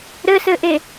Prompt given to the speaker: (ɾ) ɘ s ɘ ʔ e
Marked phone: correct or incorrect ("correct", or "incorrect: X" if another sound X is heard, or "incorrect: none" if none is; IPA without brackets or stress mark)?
correct